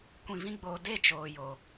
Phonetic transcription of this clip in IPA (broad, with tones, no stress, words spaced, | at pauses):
kʷĩ˨vĩ˧ɡ͡boː˨ de˦˨t͡ʃoː˨ jo˨